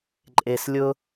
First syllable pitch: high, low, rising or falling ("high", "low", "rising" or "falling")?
low